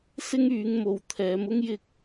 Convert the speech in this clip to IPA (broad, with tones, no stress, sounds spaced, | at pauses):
s ɪ˥ ŋ yː˨˧ ŋ m o˨ w t̪ʰ ɛː˨˧ m ʊ˥ ŋ j ɪ˧ k̚